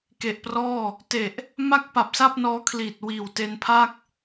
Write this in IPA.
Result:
k e˨˩ ʔ p r ɔː˥˩ | t e˨˩ ʔ | m a˥˩ k̚ p a˨˩ p̚ s a˥˩ p̚ n ɔː˦˥ kʰ l iː˨˩ t̚ w iː˨˩ w t e˧ n pʰ a˥˩ k̚

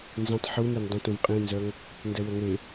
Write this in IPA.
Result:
n z ẽ tˤ ħ u n e n dˤ ə̃ t ũ v qʼ ĩ n z œ ŋ | n d ɛ w ə ŋ e

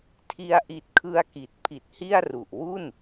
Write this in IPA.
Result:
tʰ i˧ a̯ ʔ i˨˩ t̚ kʰ ɯ˧ a̯ k i˨˩ t̚ pʰ i˨˩ t̚ h i˥˩ a̯ r u˨˩ ʔ w u˥˩ n

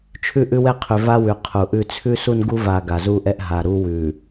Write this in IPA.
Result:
t͡ʃʰ ʉ˦ ʔ ʉ˦ w ɛ˦ qʰ ʉ˨ v a˦ w ʉ˨ qʰ u˨ ʔ ʉ˦ t͡sʰ ʉ˦ s u˦ n ɡ u˦ v a˨ ɡ a˨ z u˦ ʔ ɛ˦ ʔ ɦ a˨ ɾ u˦ w ʉ˨

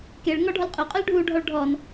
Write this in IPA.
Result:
k e ɭ ŋ ɔ ɖʱ ɔ l qʼ ʏ qʼ ʏ l ɖʱ u ɖʱ ɔ ɭ ɖʱ ɔ n

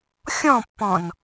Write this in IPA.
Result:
xʲ ɔ̃ pː ɔ̃ n

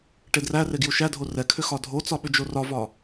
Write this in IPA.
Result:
ʈ e d r æ r e ɡ j u ʃ æ dʱ o r ɛ kʰ ʏ x ɒ dʱ o t͡s ɒ ɓ ʏ d͡ʒ o r ɒ v ɒ

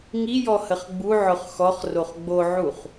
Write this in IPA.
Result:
ŋ i j ɔ h ə χ ɡ͡b u ʕ ʊ χ x ɔ χ r o χ ɡ͡b o ʕ u χ

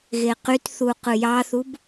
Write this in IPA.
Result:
ɣ e q y t θ u q ɯ j ɑ θ u b

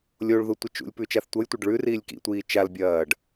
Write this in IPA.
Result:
lʲ o ɭ ð u tʷ ɐ t͡ʃ ṵ lʲ p ʉ t͡ʃ a θ tʷ ɐ j tʷ ɐ ɖ ɭ ʉ r iː lʲ k ḭ tʷ iː t͡ʃ a l bʲ ɐː ɖ

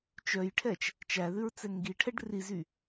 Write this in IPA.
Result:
t͡ʃ œ j ʈʰ ɛ t͡ʃ | t͡ʃ æ ð ʉ ɹ t͡s ɛ ŋ ɡ i ʈʰ ɛ ɖ r i z y

